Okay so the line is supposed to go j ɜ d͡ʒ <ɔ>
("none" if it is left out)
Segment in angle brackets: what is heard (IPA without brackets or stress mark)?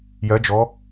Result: ɔ